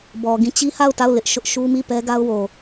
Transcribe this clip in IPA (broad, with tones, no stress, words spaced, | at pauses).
bɔ˨ɡĩ˦˨ t͡ɕi˦ha˦˨ʊ̯ta˦˨ʊ̯ lɪ˦ʔʃʊ˦ʔ ʃu˦mi˦˨ pɛ˦ ɡa˦ʊ̯wo˨